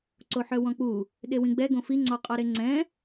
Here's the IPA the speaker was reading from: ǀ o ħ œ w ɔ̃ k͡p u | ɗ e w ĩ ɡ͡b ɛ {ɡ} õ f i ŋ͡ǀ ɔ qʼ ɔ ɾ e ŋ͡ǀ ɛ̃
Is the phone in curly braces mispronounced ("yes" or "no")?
no